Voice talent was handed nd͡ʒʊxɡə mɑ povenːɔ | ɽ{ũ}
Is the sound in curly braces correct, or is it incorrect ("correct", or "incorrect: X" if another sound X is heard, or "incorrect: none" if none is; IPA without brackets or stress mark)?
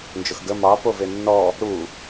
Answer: incorrect: u